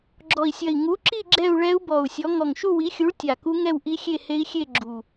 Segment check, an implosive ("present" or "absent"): absent